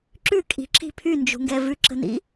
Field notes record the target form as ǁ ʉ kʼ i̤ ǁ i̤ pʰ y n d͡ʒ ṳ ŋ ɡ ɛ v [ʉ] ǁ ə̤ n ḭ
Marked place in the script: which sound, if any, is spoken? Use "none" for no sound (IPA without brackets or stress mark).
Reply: ʉ